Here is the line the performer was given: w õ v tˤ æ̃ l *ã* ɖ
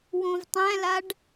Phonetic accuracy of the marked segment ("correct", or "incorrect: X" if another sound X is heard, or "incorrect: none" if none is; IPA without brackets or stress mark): incorrect: a